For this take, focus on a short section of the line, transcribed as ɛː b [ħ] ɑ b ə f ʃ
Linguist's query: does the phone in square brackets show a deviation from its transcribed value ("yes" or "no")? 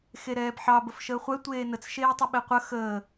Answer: no